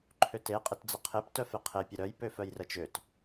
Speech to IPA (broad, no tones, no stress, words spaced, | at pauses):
ǃʰøte qʼɪtd͡zəqʰep tœfeqʰe pʲəɾœj pøfœjrət͡ʃøt